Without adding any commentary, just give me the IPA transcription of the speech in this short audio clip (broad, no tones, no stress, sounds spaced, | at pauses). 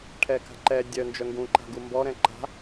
ʈʰ ɛ k a̤ ǃ ɛ dʲ œ n d͡ʒ œ ŋ ɡ ũ ǃ a̤ ɡ u m b ɔ ɾ ɛ̃ ǃ a̤